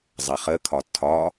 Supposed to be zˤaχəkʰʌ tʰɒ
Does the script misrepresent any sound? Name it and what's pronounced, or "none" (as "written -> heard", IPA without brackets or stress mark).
ʌ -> ɒ